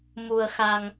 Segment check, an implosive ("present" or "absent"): absent